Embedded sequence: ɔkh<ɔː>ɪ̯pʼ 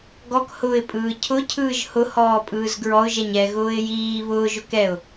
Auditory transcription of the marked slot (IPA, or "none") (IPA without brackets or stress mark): ʊː